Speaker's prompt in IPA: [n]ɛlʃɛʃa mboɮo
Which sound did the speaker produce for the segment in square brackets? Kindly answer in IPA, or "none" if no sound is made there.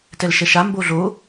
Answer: t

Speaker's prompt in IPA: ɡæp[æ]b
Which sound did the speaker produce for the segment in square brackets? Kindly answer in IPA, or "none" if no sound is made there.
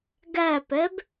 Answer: ɛ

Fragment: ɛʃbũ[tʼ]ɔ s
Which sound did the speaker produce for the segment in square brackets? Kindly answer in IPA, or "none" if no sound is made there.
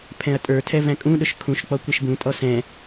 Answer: tʼ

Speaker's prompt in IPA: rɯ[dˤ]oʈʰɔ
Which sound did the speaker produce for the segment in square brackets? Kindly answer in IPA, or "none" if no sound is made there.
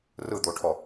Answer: d̪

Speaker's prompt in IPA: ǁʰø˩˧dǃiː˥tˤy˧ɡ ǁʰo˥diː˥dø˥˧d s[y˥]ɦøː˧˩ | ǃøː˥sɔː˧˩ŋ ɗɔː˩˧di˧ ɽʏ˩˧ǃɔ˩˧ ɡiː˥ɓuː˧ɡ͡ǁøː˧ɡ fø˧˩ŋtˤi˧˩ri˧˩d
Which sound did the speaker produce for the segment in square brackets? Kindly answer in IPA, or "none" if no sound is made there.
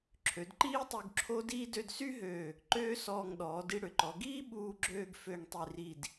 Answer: y˥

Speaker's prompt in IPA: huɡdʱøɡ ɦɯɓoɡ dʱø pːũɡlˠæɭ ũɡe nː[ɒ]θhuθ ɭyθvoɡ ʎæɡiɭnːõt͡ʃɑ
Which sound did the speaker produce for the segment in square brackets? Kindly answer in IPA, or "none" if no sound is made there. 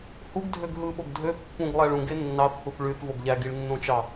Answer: ɑ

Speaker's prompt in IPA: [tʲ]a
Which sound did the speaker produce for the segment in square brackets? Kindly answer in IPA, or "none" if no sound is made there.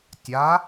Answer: tʲ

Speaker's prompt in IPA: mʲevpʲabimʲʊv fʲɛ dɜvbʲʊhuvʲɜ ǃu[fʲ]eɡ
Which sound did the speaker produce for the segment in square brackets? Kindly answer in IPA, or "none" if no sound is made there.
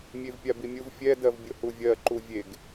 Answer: vʲ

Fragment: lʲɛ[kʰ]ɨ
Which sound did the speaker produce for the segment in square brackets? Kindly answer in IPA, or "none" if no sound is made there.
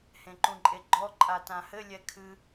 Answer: kʰ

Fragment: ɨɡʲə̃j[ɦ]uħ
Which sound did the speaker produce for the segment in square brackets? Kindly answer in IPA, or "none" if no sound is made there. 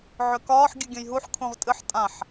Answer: ɦ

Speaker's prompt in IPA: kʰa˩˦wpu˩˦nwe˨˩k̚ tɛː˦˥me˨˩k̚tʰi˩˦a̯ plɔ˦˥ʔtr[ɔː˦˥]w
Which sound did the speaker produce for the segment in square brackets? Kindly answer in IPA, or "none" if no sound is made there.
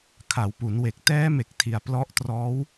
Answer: ɔː˦˥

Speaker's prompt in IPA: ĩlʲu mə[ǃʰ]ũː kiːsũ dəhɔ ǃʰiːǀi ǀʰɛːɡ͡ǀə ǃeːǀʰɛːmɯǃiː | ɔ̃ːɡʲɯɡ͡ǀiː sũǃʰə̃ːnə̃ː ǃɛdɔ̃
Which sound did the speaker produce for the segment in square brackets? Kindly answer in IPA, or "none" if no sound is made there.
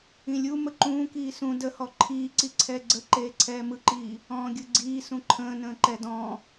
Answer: ǃ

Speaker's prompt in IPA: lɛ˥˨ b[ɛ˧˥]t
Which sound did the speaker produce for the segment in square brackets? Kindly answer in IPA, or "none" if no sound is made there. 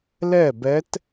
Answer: ɛ˧˥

